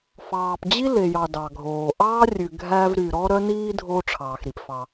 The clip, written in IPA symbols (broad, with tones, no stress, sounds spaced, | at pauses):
f ɑː˨ p d͡ʑ i˥ l e˨ j ɑ˨ d ɑ˩ ɡʱ oː˩ ʔ ɑː˥ rʲ ʉ˨ ɡʱ æ˦ v ɾ y˨ ɾ ɔ˦ ɾ œ˦ n iː˦ dʱ oː˦ ʈ͡ʂʰ ɑː˩ x ɾ i˩ p f ɑ˨